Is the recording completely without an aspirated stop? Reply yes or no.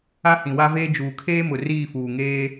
no